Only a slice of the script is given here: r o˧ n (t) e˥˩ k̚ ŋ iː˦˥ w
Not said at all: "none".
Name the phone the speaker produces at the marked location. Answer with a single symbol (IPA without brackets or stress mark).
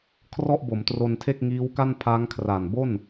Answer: tʰ